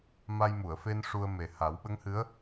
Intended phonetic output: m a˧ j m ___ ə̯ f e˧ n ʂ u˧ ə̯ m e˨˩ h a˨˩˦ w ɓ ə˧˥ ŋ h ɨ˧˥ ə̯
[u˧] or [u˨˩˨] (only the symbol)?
u˨˩˨